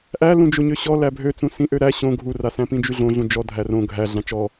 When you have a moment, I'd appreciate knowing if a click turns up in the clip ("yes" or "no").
no